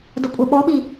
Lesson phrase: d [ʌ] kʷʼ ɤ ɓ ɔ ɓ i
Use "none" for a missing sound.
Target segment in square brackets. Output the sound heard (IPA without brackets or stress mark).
ə